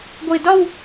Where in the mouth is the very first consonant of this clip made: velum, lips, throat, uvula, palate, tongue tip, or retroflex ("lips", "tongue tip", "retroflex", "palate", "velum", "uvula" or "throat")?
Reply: velum